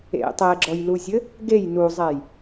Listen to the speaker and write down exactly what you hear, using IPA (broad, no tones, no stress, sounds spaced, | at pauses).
ḛ tˤ ɛ ɡ͡ǁ ɔ j l u zʲ ɘ | ɡ e j n u zˤ ɛ j